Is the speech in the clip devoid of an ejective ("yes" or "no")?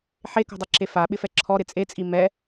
no